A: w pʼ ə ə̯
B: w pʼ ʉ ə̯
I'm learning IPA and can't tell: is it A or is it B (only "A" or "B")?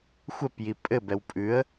B